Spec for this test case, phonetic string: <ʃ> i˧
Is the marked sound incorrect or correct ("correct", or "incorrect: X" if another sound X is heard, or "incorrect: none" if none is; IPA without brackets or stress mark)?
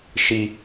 correct